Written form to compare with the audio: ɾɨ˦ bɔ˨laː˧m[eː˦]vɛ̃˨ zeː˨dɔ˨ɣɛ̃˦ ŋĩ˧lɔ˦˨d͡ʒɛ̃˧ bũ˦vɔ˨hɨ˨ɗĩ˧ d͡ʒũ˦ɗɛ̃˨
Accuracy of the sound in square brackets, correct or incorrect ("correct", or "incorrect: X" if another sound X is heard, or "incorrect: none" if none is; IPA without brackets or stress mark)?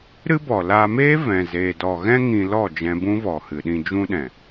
correct